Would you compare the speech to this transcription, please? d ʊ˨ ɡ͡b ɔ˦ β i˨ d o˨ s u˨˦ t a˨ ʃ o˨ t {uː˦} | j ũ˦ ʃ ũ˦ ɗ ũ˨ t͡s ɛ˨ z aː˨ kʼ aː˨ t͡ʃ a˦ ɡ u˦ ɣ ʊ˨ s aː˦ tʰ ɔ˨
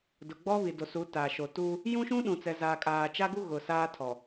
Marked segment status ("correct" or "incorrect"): correct